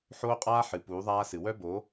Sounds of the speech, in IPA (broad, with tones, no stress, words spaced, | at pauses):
ħoː˦qʼaː˦ ħɨ˨ puː˨˦ðˤaː˦sɨ˨ wœ˦bo˨˦